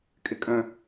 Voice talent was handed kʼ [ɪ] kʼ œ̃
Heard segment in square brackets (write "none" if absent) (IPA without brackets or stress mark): ɪ